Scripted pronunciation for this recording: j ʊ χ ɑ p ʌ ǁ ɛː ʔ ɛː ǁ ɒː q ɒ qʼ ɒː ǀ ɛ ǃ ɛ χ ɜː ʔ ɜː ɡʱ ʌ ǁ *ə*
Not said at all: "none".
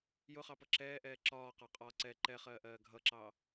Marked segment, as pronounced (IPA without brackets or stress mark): ɑ